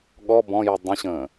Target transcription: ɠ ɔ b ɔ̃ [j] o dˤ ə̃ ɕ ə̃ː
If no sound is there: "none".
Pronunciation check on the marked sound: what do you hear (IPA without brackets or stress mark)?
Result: j